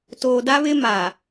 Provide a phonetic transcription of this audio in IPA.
toː˨da˦ βɪ˦ ma˨

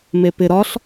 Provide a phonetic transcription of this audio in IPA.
mepɪ ɾɒɬ

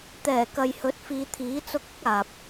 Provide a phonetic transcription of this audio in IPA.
t̪ɛː˨˩kɐ˨jhɵ˨˥t̚ fiː˨t̪ʰiː˨˥t͡sʊ˧k̚ʊ˥k̚ aː˨p̚

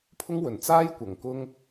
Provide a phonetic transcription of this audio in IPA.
pʰʊ˥ŋwɵ˨˩n t͡saː˥jkʷɐ˨˩ŋ kʊ˥ŋ

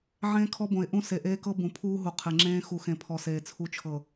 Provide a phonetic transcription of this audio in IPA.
ʕẽː˦kʰɔ˦bõ˨ɪ̯ʔũ˦ se˨ʔeː˦kɤ˦ bũ˨pʰuː˦ɦu˨ qʰe˨ŋ͡ǁẽː˦ xu˨ xẽ˨pʰɔ˨seː˨ t͡sʰu˨t͡ʃʰɤ˨

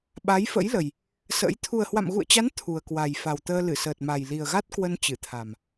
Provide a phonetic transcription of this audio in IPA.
ɓa˨˦jfə̰˧˥jlə˨˩j | sə̰˧˥j t̪ʰu˨˩ə̯hwa̰˧˨mɣṵ˧˨ə̯t͡ɕa˨˦n t̪ʰu˨˩ə̯ kwa˨˩jfa˨˩wt̪əː˧ lɨ˧˩səː˨˩t̚ma˨˩j li˨˩ə̯ɣa˦˥t̚kwə˧n t͡ɕɨ˧˩t̪ʰa˨˩m

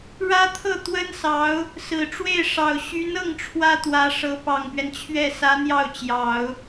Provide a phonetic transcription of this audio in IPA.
ɻä˥t̪ʰɤ˥˩ t̪wə˥nsɑ˧˥ʊ̯ | sɹ̩˨˩ʈ͡ʂwe˥˩ɪ̯ʂɑ˨˩ʊ̯ ɕy˧˥nɤ˥˩ŋ ʈ͡ʂʰwä˥t̪wä˧˥ʂɤ˧˥ pɑ˨˩ŋpɥɛ˦nt͡ɕʰɥɛ˥˩ sä˧˥n̪jɑ˥˩ʊ̯t͡ɕjɑ˨˩˦ʊ̯

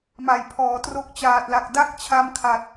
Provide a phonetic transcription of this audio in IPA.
ma˨˩jpʰɔː˩˦ tro˦˥k̚t͡ɕaː˨˩t̚la˨˩k̚ da˥˩k̚t͡ɕʰa˦˥mkʰa˨˩t̚

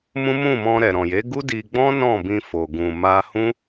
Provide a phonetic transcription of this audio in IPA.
mũ˦mũ˦˨mɔ̃˧ ɾɛ˨ɾɔ̃˨je˨˦ ɡu˦di˧ɡ͡bɔ̃˦ nɔ̃˦˨bĩ˧ fo˨ ɡũ˨ ma˧ hũ˦

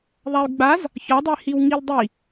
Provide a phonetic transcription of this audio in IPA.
ðˤay̯ɡ͡baz | çɒdˤehiw ŋildˤi

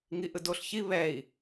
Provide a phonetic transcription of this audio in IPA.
ŋiʔɯdoɬçi βɛi̯

